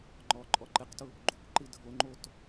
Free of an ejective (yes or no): no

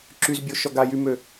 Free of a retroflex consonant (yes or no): yes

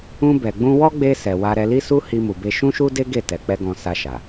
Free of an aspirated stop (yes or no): yes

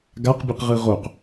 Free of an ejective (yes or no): yes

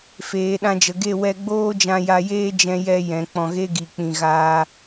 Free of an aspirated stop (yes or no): yes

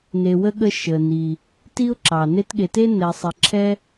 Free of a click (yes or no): no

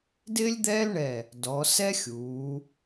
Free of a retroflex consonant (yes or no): no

